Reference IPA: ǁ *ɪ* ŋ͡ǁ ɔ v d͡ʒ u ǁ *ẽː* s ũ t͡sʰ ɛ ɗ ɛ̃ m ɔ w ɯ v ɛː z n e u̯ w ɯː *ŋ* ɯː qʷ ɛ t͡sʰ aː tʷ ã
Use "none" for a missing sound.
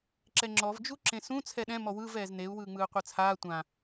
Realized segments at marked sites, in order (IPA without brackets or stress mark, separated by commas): ɛ, ẽ, ŋ͡m